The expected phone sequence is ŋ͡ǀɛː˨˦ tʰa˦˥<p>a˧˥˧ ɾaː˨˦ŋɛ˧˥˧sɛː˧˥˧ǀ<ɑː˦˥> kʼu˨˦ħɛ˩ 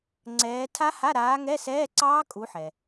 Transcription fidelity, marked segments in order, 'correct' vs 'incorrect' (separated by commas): incorrect, correct